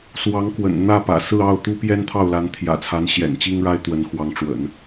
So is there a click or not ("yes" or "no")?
no